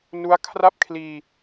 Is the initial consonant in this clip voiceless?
no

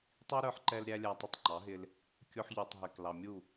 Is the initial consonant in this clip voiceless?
yes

